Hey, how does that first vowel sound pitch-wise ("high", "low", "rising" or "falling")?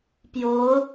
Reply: rising